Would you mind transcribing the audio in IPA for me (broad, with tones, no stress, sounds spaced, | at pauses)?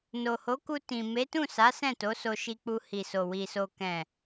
n o˨ h o˨˦ k u˧ t ĩ˨ m e˨˦ t ũ˦˨ s a˨˦ s ɛ̃˦˨ t o˨˦ s o˧ ʃ i˧ k͡p u˧ h i˨ s o˨ w i˨ s o˨ k ɛ̃˨